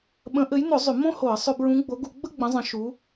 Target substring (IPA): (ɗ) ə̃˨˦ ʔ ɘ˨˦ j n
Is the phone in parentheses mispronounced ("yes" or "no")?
yes